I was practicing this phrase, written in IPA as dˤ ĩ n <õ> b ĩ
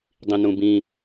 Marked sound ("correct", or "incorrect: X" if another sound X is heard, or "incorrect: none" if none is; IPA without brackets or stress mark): incorrect: ũ